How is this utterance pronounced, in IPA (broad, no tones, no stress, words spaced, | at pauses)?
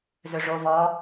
zøʐo vɔ